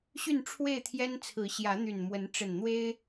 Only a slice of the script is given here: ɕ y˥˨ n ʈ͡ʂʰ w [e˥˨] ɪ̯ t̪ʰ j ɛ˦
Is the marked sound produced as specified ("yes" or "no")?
yes